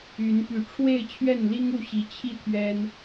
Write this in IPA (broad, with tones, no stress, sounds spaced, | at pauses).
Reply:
y˨˦ n p y˨˩ ʈ͡ʂʰ w e˥˨ ɪ̯ t͡ɕʰ ɥ ɛ˥˨ n l i˦ ŋ u˥˨ ɕ i˨˦ t͡ɕʰ i˥˨ t̪ʰ ɥ ɛ˦ n